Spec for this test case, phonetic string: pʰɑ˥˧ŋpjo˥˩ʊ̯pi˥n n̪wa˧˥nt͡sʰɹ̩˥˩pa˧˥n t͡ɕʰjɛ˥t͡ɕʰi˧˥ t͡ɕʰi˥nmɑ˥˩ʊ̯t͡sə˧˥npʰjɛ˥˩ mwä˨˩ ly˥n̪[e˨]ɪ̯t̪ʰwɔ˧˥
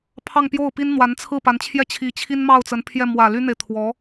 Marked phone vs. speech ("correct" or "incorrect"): correct